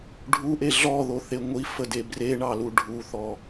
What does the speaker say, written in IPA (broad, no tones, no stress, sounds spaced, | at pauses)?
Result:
ɖʱ u ʔ e ɮ ɔ ð o θ e ŋʷ i f ə d e b r e ɳ ɑ l u ɖʱ u θ ɔ